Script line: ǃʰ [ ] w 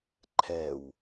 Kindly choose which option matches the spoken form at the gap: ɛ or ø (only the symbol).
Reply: ɛ